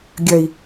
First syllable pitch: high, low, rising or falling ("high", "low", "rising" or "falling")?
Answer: low